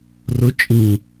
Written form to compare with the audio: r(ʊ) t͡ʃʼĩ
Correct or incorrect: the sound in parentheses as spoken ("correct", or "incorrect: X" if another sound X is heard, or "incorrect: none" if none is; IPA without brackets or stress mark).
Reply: correct